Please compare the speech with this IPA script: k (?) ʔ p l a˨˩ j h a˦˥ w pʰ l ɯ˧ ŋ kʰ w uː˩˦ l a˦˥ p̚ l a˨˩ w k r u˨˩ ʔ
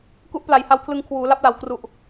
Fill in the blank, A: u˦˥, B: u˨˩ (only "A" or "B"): A